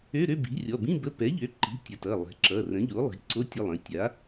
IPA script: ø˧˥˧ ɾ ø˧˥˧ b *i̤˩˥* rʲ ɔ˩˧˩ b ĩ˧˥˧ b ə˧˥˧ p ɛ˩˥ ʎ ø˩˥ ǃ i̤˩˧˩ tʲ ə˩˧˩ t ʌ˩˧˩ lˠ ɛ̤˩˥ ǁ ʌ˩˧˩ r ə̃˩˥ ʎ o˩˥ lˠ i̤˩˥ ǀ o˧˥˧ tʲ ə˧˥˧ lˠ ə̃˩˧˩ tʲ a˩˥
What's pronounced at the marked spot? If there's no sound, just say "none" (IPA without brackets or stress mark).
i̤˩˥